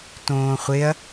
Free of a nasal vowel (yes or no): no